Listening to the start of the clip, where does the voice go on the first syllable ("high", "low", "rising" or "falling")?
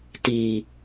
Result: low